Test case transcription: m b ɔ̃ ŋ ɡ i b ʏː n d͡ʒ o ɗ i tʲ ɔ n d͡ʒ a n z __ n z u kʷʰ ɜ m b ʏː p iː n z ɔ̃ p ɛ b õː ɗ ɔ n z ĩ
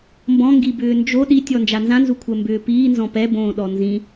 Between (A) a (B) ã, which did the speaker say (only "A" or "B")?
B